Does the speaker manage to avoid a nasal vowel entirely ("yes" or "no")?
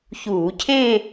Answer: no